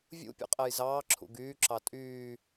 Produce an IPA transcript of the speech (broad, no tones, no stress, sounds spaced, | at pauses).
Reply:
vʲ ṵ pʲ ɔ̰ qʼ ɛ j z ɑː ǁʰ ṵ ɡ yː ǁ ɑ tʼ yː